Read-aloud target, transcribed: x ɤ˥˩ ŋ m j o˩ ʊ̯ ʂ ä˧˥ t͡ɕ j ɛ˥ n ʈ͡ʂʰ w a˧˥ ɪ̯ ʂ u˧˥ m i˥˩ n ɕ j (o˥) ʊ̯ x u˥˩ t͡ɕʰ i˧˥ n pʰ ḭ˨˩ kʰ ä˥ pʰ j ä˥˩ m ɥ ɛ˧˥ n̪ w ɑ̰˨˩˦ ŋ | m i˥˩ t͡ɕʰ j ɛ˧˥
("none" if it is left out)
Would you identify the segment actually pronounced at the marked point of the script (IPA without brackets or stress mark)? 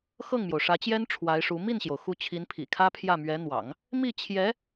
o˩